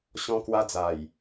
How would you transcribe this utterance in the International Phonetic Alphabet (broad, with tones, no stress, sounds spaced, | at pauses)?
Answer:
ɕ ɔ̃˧ k w a˧ d͡z a˨˩ j